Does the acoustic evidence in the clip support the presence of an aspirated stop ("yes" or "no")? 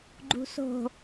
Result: no